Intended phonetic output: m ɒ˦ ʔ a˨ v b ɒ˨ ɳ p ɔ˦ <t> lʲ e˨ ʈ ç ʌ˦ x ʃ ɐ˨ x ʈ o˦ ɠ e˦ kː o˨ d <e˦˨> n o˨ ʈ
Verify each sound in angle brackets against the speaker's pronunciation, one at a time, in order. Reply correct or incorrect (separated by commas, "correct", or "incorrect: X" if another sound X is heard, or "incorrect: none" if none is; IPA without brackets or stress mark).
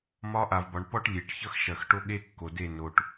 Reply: incorrect: ʈ, correct